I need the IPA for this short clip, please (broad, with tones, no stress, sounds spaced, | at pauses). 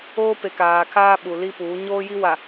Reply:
oː˦ p e˨ k aː˨ kʰ aː˦ ɓ u˨ l i˦ p uː˨˦ ɲ oː˦ j i˦ w a˨